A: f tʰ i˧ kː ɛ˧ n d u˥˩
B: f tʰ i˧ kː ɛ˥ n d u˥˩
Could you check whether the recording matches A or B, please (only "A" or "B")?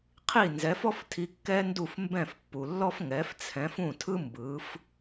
B